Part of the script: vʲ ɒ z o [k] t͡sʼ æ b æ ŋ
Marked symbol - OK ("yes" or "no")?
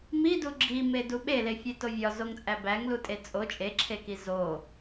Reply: no